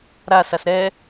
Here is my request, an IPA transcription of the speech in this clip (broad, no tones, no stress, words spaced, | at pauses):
ɾasas ɾɛ